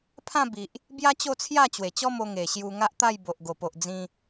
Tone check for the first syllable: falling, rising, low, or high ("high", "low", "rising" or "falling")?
falling